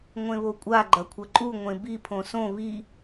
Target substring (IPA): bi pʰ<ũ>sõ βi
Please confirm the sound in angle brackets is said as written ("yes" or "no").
no